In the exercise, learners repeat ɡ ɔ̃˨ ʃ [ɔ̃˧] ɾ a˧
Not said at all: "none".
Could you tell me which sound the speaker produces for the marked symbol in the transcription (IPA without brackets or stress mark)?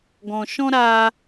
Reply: ɔ̃˧